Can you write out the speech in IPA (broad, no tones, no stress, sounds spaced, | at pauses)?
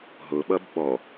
ɦ ʊ ɓ ʌ b ɓ ɔ